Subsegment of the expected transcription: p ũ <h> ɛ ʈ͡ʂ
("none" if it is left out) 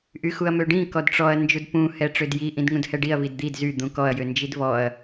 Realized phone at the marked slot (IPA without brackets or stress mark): h